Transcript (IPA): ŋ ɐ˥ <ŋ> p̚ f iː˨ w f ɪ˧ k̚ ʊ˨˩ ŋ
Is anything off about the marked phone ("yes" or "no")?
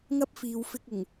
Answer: yes